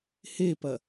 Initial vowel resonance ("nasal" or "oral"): oral